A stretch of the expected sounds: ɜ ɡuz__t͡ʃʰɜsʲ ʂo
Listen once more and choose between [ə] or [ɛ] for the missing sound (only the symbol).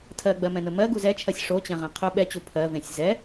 ɛ